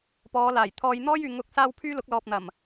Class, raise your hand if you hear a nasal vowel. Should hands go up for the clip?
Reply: no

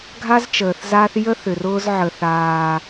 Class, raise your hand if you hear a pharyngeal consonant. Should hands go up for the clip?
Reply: yes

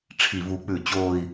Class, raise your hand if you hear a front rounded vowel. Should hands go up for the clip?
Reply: no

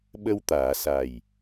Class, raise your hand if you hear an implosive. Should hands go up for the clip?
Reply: yes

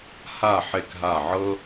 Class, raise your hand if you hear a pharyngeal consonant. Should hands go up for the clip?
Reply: yes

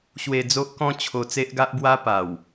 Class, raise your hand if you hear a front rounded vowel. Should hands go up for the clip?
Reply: no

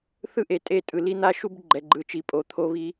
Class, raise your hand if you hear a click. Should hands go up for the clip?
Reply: yes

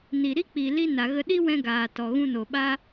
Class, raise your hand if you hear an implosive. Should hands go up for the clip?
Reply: yes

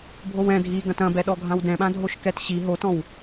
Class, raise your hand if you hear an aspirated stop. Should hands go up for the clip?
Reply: no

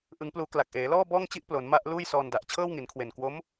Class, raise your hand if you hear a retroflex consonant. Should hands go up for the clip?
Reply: no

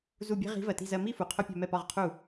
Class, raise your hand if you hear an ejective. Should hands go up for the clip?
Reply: no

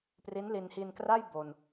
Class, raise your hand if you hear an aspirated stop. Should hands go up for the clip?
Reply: no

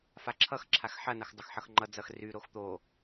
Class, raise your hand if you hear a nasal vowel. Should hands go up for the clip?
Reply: no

